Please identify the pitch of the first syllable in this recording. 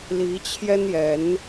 rising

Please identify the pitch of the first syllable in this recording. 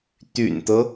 low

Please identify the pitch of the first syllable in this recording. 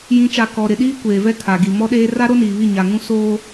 rising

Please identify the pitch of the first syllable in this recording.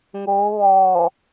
rising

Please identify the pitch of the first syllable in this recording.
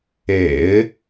low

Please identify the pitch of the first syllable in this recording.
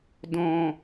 low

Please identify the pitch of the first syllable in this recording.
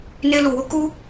high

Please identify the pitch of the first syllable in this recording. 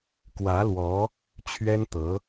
rising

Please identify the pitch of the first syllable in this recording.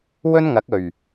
high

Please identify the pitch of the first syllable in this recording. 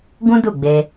high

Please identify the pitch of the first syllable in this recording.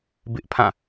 high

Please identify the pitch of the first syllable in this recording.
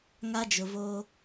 high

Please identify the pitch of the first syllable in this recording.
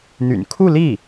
low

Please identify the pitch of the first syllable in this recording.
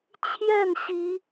falling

